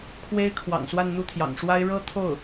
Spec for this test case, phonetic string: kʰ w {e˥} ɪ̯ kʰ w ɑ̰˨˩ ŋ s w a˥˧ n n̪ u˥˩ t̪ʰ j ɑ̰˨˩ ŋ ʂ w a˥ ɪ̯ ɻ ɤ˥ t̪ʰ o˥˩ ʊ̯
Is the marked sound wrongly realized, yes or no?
no